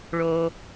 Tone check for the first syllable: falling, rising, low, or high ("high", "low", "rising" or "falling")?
low